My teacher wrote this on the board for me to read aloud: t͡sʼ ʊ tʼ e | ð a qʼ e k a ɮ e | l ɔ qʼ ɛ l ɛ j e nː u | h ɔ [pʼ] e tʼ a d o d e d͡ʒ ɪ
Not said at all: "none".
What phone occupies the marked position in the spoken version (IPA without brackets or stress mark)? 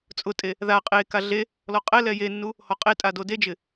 qʼ